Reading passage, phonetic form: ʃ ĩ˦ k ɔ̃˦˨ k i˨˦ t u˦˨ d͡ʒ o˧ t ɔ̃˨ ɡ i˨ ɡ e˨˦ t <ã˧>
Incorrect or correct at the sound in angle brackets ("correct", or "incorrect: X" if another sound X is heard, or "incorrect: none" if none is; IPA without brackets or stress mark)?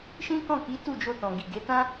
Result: incorrect: ã˦